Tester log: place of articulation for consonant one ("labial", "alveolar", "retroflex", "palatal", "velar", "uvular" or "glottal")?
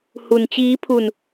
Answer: glottal